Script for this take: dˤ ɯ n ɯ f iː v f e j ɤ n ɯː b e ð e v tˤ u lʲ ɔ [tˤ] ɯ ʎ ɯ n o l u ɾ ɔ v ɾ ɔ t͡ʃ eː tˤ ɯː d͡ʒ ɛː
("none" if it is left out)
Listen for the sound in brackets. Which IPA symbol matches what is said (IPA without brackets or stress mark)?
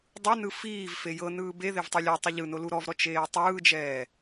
tˤ